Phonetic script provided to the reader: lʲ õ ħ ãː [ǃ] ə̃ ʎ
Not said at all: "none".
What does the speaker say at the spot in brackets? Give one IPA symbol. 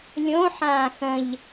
x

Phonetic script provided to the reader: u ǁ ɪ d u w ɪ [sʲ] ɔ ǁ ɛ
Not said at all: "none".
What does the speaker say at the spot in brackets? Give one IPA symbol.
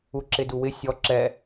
sʲ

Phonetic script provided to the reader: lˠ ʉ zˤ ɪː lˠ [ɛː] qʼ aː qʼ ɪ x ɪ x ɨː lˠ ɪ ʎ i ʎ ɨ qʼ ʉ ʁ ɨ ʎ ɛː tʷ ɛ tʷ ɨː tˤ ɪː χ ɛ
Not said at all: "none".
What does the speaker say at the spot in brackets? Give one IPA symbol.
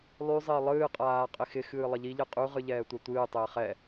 ɨː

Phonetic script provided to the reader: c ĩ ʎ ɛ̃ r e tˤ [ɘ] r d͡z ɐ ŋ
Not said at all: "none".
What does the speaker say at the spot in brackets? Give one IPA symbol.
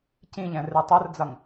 ɘ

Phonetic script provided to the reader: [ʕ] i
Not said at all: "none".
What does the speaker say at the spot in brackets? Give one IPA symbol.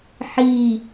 ħ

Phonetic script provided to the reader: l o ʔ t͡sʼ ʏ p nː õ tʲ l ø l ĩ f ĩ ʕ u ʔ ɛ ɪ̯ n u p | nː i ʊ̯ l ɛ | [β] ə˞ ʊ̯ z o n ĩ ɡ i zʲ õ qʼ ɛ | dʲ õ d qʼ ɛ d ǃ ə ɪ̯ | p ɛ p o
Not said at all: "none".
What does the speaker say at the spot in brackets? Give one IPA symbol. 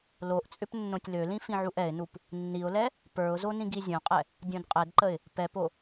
p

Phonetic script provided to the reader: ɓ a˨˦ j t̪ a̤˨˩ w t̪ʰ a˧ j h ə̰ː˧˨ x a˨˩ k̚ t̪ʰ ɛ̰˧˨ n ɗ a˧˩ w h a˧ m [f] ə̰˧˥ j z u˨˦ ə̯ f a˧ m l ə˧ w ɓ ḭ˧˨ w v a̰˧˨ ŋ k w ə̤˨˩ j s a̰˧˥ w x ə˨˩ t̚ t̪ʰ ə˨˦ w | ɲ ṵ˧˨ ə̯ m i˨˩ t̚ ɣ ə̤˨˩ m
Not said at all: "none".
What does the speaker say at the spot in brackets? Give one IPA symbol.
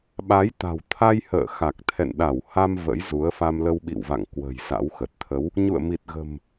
v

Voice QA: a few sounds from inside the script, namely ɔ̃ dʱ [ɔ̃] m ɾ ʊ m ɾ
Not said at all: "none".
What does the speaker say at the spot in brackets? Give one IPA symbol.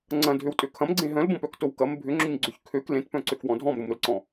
ɔ̃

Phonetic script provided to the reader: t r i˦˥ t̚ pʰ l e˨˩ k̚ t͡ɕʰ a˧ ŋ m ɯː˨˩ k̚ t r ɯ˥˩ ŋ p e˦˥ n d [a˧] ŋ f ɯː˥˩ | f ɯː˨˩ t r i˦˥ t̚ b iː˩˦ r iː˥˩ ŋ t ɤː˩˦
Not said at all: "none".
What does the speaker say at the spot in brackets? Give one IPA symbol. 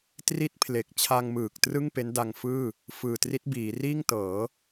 a˧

